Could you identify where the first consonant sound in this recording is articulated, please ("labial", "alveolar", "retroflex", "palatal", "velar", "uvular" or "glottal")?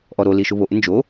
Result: glottal